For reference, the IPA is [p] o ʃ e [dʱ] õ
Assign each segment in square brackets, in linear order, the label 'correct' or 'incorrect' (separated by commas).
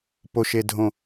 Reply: correct, correct